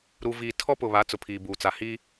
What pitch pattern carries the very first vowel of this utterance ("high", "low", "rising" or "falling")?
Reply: high